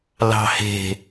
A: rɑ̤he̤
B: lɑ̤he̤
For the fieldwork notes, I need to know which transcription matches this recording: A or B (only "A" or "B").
B